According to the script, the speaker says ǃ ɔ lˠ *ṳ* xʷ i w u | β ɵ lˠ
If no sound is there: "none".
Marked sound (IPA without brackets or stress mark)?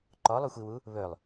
u